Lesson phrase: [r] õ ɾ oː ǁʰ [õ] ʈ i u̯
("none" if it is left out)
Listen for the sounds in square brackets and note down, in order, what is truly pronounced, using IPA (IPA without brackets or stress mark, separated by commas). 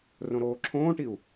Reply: r, õː